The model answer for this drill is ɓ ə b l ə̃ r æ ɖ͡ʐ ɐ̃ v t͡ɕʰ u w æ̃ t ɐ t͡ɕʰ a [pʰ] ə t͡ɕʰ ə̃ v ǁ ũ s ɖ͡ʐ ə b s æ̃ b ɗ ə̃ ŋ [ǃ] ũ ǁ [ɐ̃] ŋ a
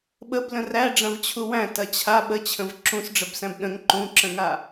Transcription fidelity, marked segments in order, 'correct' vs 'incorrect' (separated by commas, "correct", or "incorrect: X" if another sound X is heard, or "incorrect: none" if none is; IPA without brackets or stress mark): incorrect: ɓ, correct, incorrect: ə̃